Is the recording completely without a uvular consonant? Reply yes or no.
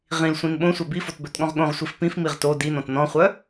no